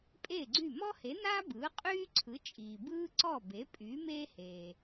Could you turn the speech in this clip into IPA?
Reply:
pʼ eː˥˩ ɡ͡ǀ y˥˩ m ɔ˥ h e˩˥ n aː˥ b ɯː˩˥ qʼ yː˥ ǀʰ ɯ˩˥ t͡ʃʼ iː˩ b ɯː˥ ǀ ɔ˥˩ b e˩˥ pʼ yː˩˥ m eː˥ h eː˩

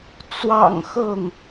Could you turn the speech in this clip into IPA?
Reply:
t͡s w ɑ̰˨˩ ŋ x ɤ˥˨ ŋ

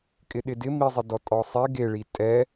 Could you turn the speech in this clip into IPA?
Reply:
kʼ ɪ ɗ ɪ d ɪ m i zˤ ɪ d ɔ tʼ ɔ sˤ e ɡ e ɭ i tʼ ɛ

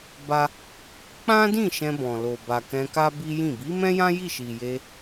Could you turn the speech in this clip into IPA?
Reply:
b a˦ | k͡p ã˦ d ĩ˦˨ ʃ ɛ̃˧ b ɔ̃˨ l o˨ b a˨ k ɛ̃˧ k a˦ b i˦ j ĩ˦˨ b i˨˦ m ɛ̃˦ j ã˦ j i˦˨ ʃ i˨ j e˧

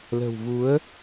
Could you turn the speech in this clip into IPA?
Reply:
l ə̤˨˩ w v u˨˦ ə̯

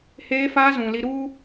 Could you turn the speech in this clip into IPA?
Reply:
h eː˧ f aː˧ z ũ˨ l i˧ ɾ u˦

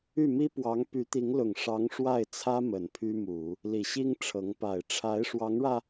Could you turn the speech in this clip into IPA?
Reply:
y˥˩ m i˥ p w ɑ˧˥ ŋ p y˧˥ t̪ i˧˥ ŋ l ʊ˨˩ ŋ ʂ ɑ˧˥ ŋ ʂ w a˥˩ ɪ̯ t͡sʰ ä˥ m ə˨˩ n pʰ y˥ m u˨˩˦ | l i˨˩ ɕ i˥ ŋ ʈ͡ʂʰ ɤ˧˥ ŋ p a˨˩ ɪ̯ ʈ͡ʂʰ a˧˥ ɪ̯ ʂ w ɑ˧˥ ŋ ɻ ä˧

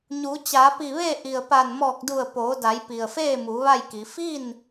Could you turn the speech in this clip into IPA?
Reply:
ɲ u˩˧ t͡ɕ aː˩˧ p i˧˩ ʋ e˥˨ ʔ i˩ ə̯ p a˧˩ n m ɔː˧˩ k̚ d u˧˩ ə̯ p oː˩˧ d a˩˧ j p i˩ ə̯ f eː˥˨ m u˩˧ ʋ a˥˨ j k i˩˧ f i˥˨ n

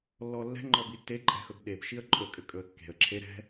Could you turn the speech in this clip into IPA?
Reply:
lː ɔ lː ɛ̤ ŋ͡ǃ ɔ b i tː e ǃʼ ɛ̤ x ɵ b ɗ e b ʃ i ə̯ ǃʼ ɵ kʼ ɘ kʼ ɵ ə̯ kː e̤ ə̯ ǁʰ e ɾ ɛ̤

